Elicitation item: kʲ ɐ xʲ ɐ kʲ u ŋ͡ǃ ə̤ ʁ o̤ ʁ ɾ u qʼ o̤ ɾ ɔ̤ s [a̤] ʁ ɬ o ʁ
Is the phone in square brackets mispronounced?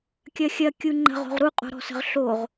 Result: yes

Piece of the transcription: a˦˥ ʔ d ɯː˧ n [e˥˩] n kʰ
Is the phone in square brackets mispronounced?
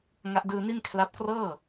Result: yes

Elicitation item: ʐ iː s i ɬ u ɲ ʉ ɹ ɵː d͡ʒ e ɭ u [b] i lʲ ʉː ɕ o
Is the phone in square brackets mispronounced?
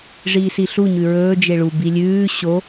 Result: no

